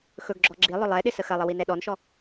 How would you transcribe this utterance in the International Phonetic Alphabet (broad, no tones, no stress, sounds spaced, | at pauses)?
x ɵ ɡ ɡ͡ǁ ɔ ɡ͡ǁ i lˠ ʊ lˠ ɛ ɗ ɪ s ə x ɐ lˠ ə w i n ɛ ɗ ɔ n ʃ ɔ